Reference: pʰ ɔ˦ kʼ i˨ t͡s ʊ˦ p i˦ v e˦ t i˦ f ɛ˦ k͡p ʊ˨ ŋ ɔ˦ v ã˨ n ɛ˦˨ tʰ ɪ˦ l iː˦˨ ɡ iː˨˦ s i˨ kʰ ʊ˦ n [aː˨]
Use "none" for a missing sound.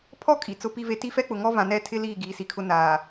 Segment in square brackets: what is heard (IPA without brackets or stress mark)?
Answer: aː˨